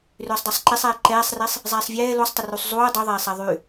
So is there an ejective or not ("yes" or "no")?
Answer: no